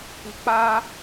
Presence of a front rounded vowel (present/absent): absent